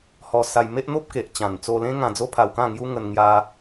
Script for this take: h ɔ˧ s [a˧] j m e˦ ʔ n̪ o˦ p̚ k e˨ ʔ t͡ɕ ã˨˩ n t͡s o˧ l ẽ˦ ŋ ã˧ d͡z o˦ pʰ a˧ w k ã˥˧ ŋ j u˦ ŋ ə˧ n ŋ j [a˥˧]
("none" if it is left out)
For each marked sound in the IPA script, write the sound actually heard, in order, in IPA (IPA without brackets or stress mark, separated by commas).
a˧, a˧